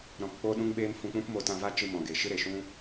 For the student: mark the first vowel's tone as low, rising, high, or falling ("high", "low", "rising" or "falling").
low